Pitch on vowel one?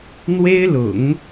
high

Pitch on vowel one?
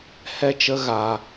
high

